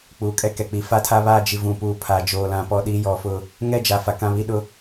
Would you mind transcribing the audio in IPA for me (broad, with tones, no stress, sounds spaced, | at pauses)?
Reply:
k͡p uː˨ kʼ ɛ˦ k ɛ˨ k͡p i˨ f a˦ tʰ a˦ β aː˦˨ d͡ʒ i˨ v ũ˨ p uː˨ pʰ aː˨ d͡ʒ oː˨ l ã˨ p ɔ˨ ɗ iː˦ j ɔ˨ f ʊ˦˨ | ŋ ɛ˦ d͡ʒ a˨ f a˨ k ã˦˨ β i˦ ɗ ʊ˦